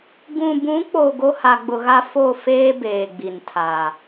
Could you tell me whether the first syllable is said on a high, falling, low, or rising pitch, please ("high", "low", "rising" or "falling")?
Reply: low